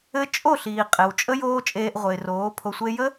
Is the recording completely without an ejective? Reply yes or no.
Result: no